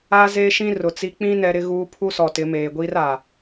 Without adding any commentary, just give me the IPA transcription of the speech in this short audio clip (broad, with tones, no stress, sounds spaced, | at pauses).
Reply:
aː˦ z eː˦ ʃ ĩ˦ r ʊ˨ t͡s i˦ k͡p ĩ˦ n ɛ˦ ɾ ɪ˦ ɣ uː˦ pʰ u˦ s ɔ˨ t ɪ˨˦ m eː˨ ɡʷ iː˦ r aː˨